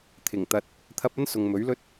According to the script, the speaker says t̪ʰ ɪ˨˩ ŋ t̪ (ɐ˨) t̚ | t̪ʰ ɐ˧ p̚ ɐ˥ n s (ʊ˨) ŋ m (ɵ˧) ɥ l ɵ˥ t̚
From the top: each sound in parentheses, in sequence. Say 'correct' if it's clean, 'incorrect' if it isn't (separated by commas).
incorrect, correct, incorrect